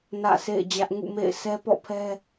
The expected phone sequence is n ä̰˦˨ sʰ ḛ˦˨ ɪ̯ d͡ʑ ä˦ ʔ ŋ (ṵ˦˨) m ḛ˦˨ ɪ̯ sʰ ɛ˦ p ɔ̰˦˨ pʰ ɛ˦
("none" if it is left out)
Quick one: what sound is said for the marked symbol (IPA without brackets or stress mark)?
ṵ˦˨